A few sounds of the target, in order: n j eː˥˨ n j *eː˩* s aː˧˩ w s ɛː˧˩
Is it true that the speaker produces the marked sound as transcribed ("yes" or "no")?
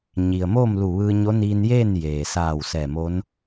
yes